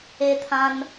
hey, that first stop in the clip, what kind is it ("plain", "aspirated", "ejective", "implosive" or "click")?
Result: aspirated